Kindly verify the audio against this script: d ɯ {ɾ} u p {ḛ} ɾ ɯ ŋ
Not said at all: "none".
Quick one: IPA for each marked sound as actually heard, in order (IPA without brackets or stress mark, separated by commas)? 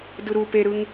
ɾ, e